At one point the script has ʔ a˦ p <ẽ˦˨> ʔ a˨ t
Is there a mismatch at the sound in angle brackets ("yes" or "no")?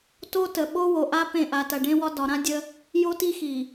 no